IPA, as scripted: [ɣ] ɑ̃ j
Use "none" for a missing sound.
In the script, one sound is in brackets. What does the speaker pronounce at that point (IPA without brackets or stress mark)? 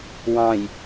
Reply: w